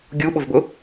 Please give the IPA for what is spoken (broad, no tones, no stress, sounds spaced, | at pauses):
ɡʲ u ɓ ʊ v b ʊ